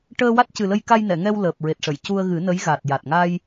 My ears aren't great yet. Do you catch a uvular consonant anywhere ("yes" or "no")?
no